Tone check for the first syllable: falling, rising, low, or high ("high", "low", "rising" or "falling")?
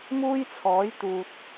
high